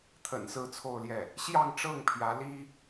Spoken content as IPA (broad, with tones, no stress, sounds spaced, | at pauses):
t̪ʰ ə̰˨˩ n s ɹ̩˥˧ t͡sʰ o˥˧ ʊ̯ l j ɛ˥˩ | ɕ j ɑ˥˧ ŋ ʈ͡ʂ ɤ˥˩ ŋ pʰ j ä˧˥ l i˥